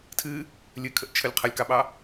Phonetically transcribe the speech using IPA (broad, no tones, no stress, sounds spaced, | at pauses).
tʰ ɨ | lʲ ɨ kʰ ə ʔ t͡ʃʰ ə lʲ qʰ ə lʲ k ɑ ɓ ɑ